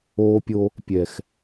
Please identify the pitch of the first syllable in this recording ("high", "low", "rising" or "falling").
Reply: high